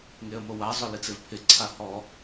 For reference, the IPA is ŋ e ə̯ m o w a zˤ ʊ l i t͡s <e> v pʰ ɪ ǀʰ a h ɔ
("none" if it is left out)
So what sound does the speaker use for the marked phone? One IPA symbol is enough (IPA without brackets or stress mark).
e